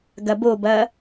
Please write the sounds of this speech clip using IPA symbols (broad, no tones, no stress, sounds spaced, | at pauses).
ɡ ɐ b o b ɐː